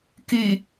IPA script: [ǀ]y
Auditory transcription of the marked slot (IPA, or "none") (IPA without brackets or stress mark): k